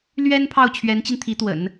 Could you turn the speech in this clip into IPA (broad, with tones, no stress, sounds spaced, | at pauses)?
l ɥ ɛ˥ n pʰ ɑ˥˩ ʊ̯ t͡ɕʰ ɥ ɛ˧˥ n t͡ɕ i˧ n t̪ʰ i˧˥ t̪ w ə̰˨˩˦ n